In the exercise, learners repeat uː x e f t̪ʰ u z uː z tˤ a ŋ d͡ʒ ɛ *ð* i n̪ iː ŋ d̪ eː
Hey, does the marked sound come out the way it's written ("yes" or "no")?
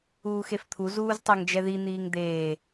yes